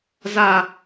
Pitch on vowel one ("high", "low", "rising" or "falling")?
falling